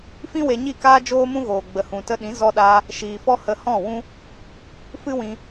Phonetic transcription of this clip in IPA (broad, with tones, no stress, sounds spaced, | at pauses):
f ĩ˦ w e˧ ɲ i˦˨ k aː˦ d͡ʒ oː˦ m ũ˦ ɣ oː˨ ɡ͡b ə˨ h ũ˨ t ə˧ ɗ ĩ˨˦ z ɔ˧ ɗ aː˧ | ʃ iː˨ f ɔ˦ h ə˧ h ɔ̃˦˨ w ũ˦ | f ɨ˦ w ĩ˧